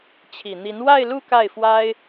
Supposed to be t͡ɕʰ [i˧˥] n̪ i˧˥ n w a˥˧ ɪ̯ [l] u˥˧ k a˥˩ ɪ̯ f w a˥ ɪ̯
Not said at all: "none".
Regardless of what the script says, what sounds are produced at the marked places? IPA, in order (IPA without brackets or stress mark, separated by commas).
i˨˩, l